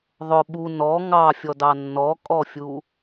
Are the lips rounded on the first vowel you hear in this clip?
yes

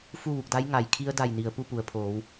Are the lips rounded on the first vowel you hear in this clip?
yes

